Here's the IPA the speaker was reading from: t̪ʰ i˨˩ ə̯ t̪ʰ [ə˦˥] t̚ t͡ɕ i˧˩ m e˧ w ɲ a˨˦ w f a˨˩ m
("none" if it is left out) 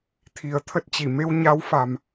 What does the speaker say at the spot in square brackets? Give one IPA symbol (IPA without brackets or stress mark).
ə˦˥